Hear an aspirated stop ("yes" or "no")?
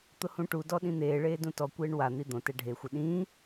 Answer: no